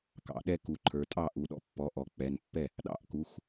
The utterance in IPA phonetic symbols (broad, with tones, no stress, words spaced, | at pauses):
kɑ̰˩˧ɗɛ˦ ku˩˧ǃʰə˞˩˧tʼɑ˥˩ ʔu˩˧ɗɔ̰˩˧pːɔ˩˧˩ʔɔ˩˧ k͡pɛ˩˧˩npːɛ˥˩ | ɗɑ̰˥˩ʔku˩˧˩x